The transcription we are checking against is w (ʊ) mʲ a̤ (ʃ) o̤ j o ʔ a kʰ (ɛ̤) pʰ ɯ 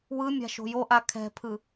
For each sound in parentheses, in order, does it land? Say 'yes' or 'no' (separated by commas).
no, yes, yes